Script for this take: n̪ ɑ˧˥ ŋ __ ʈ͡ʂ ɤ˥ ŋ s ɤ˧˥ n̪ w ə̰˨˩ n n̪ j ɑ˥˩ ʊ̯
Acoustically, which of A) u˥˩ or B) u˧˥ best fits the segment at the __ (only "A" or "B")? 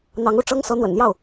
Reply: A